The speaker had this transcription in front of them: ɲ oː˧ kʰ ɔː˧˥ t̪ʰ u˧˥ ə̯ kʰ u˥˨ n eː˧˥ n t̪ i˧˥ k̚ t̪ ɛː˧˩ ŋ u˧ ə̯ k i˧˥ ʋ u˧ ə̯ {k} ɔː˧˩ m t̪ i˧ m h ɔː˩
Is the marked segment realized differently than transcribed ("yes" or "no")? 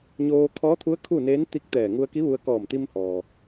no